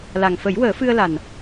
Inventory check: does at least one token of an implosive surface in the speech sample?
no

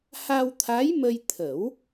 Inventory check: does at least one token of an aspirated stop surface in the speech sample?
yes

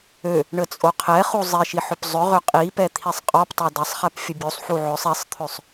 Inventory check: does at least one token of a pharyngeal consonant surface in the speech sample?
yes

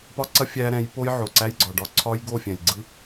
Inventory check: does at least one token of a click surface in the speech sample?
yes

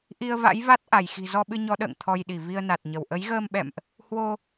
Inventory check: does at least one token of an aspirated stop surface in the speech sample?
yes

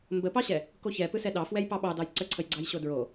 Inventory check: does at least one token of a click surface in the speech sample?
yes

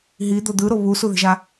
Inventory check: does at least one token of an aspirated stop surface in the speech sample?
no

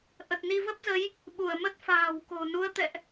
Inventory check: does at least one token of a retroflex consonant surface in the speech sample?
no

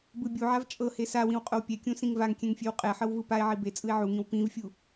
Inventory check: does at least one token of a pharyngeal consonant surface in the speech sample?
yes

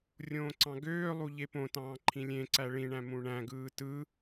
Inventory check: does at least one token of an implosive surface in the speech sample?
no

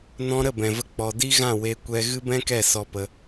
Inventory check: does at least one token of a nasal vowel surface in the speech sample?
yes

